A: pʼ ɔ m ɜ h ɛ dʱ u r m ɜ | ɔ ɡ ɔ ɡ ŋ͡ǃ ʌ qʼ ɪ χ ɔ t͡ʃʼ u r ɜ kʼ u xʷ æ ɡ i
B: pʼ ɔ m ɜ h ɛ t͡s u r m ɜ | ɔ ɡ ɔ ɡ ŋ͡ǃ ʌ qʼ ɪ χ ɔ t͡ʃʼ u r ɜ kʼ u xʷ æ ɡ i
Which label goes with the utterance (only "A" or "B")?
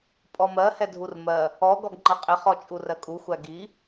A